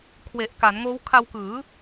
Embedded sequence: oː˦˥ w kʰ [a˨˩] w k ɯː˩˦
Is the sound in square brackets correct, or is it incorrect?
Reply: incorrect